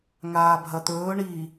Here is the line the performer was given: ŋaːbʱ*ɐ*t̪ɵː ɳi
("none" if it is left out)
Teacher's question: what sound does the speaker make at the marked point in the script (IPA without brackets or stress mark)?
ɐ